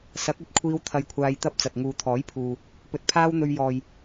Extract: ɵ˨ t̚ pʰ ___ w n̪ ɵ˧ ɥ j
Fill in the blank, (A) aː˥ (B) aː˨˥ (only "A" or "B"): A